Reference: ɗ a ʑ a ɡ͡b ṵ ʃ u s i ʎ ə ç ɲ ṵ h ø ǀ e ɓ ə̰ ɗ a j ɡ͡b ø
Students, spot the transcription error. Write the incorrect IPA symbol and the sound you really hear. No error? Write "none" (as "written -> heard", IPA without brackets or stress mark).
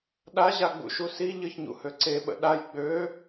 none